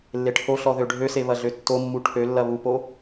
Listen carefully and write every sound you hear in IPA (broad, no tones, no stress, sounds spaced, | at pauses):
lː e ʈʰ o ɬ ɔ ð ø ɖʱ ø s e β ɐ ɮ ø tː o mː u ʈʰ ø lː ɐ β u p o